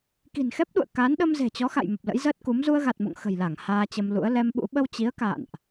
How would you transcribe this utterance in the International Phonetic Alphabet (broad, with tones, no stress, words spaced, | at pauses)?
ki̤˨˩nxɛ˦˥p̚ɗṵ˧˨ə̯ ka˨˦n ɗə˧mze̤˨˩t͡ɕɔ˨˦xa̰˧˨j mə˨˩p̚lə̰˧˥jzəː˦˥t̚ku˨˦m zu˧ə̯ɣa˨˩t̚mo̰˧˨ŋ xə̤˨˩jla˧˩ŋ haː˧t͡ɕə˧mlṵ˧˥ə̯ lɛ˧mɓṵ˧˥ ɓə˧wt͡ɕi˨˦ə̯ ka̰ː˧˨nʔ